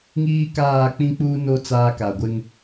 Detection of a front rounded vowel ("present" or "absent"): absent